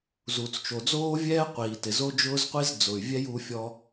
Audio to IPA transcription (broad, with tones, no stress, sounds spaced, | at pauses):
z u˨ t͡s t͡ʃ o˨ d͡z oː˦ vʲ ɛː˦ qʷ iː˨ t ɪ˨ z o˦ d͡ʒ ʊː˦ z qʷ i˦ z d͡z ʊ˨ y̯ vʲ ɛ˦ j u˧ fʲ ɔ˧